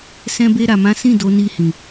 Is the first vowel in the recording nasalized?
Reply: yes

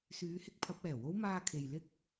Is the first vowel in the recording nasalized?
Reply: no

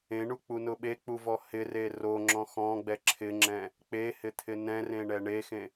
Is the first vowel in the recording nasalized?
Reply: yes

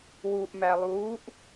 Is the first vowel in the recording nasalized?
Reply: no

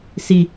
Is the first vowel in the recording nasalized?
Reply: no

